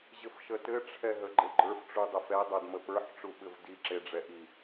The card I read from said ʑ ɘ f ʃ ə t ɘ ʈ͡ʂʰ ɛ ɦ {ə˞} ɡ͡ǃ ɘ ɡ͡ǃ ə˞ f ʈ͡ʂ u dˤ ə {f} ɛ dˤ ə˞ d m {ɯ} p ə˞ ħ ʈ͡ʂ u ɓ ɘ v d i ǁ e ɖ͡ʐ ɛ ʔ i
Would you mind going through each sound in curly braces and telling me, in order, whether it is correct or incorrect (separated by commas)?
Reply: incorrect, correct, incorrect